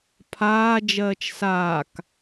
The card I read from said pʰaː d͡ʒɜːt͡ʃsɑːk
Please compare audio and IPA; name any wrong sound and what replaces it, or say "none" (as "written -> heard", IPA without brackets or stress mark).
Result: ɑː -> aː